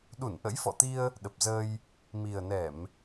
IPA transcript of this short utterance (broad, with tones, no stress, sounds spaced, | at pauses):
ɗ u˧˩ n ʔ ə̰˧˥ j f ɔ̰˧˨ t̪ i˧ ə̯ | ɗ ə˨˩ p̚ z əː˧ j | m i˨˩ ə̯ n ɛ˧˩˨ m